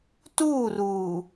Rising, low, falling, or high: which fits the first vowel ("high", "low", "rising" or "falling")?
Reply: falling